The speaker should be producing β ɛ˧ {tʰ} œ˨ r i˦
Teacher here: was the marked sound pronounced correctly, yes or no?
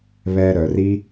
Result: no